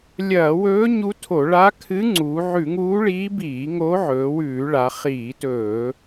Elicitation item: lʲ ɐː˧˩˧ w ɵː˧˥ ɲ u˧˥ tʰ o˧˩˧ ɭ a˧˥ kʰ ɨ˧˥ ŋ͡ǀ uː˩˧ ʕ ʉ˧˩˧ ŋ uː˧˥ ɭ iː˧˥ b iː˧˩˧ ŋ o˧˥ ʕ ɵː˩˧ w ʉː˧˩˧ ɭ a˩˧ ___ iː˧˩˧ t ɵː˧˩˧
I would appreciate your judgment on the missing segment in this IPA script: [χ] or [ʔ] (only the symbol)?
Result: χ